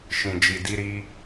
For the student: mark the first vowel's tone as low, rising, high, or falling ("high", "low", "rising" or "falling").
low